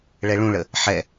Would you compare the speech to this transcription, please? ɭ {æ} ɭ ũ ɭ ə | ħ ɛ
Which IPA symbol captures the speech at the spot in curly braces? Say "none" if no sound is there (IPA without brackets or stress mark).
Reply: ɛ